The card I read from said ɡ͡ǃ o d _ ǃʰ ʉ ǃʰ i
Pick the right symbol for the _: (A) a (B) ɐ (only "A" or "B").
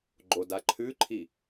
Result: A